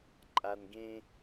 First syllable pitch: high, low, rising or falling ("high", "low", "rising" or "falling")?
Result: low